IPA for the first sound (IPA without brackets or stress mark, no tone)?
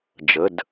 d͡ʒ